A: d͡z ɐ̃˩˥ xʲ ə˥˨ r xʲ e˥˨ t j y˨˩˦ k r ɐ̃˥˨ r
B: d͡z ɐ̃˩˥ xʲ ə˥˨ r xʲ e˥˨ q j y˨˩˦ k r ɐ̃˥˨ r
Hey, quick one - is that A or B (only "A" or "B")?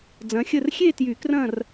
A